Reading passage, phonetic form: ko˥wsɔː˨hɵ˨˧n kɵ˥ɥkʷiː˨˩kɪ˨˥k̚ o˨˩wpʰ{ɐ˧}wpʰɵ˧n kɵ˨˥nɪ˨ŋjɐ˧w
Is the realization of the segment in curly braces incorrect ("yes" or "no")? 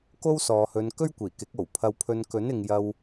no